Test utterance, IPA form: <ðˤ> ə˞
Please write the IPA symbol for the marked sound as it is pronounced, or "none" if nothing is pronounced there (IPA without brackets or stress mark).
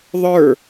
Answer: ðˤ